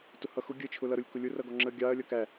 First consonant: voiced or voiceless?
voiceless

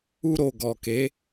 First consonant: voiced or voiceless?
voiced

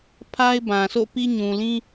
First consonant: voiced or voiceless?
voiceless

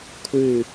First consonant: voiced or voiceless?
voiceless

